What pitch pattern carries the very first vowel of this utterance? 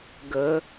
rising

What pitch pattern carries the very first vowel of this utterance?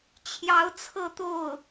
rising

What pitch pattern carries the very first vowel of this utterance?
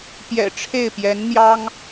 low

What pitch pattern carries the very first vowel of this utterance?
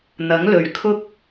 rising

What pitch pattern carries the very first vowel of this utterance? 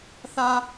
high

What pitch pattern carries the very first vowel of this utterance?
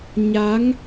rising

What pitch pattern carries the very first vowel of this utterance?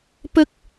high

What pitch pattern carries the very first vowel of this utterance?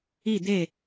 falling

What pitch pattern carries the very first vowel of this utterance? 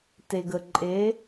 low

